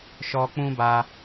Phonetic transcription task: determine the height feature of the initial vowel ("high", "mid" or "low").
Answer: mid